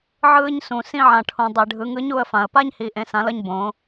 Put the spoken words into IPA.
ʕɯː˧ɲsũ˩sĩ˧ ʕã˩ʈʰũ˩ dˤi˩ɖʱɯ˩˧ ŋɯ˧˥ɲu˧ə̯fã˩ə̯ pa˥ɲhi˩ ʔẽ˩˧sã˩˧lʌ˧ɲ bõ˩˧

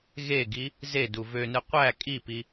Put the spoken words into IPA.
ɣeɡi | zedu vønɯ qʷæ kʼipi

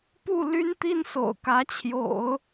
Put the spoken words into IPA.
pu˥˩ly˥nt̪i˥nso̰˨˩ʊ̯ kä˧˥t͡ɕʰjo̰˨˩˦ʊ̯

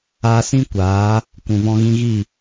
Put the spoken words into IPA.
aː˧sĩ˦ kʷaː˨˦ | kʷũ˨vɔ̃˧ ɣĩ˧ɣi˦˨

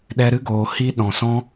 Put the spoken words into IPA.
ɗɛ˧ɾɨ˦ ɡoː˨ hi˧ ɗɔ̃˨ sɔ̃˧

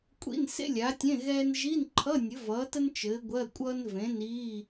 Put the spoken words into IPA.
kʷʼḭ˧˥˧nsḛ˥lʲa˨˥tʲẽ˧˥˧ ɣɛː˥n ʒi˧˥˧nǃʰʌ˧˥˧ nʲɘ˨˥vʌː˨˥tə˥n t͡ʃɘː˨˥ɡʷɜ˧˥˧kʷʼʌː˥n vẽ˨˥niː˧˥˧

